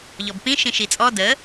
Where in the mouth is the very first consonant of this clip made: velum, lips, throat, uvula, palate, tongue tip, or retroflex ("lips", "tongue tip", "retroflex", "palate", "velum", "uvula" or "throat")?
palate